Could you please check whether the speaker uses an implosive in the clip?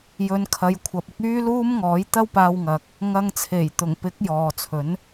no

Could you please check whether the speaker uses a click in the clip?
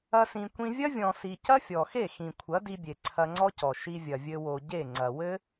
yes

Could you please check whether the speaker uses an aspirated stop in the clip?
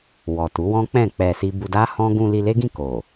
no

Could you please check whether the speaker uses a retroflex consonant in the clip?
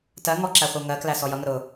no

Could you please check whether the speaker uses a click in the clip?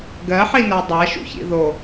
no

